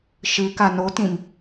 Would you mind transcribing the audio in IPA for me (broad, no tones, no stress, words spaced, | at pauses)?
ʃɨ kanotĩm